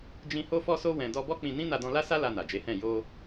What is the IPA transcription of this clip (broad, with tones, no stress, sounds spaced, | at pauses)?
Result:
d͡ʒ ĩ˦ h o˦ f ɔ˦ s o˦ w ɛ̃˧ d ɔ˧ b ɔ˦ k͡p ĩ˧ n ĩ˦ n a˧ d ɔ̃˧ l a˦ s a˦ l a˧ n a˨ d͡ʒ e˨˦ h ɛ̃˦˨ j o˧